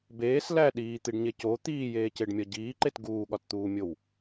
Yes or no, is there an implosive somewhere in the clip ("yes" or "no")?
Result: yes